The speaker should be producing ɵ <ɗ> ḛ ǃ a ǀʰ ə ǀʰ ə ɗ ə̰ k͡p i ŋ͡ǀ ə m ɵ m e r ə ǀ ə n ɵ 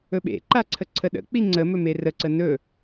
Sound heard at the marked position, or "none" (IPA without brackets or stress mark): ɓ